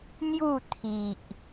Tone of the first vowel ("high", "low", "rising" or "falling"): falling